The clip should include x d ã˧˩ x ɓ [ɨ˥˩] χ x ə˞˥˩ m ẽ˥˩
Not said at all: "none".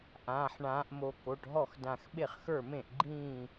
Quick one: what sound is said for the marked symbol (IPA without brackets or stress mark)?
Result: e˥˩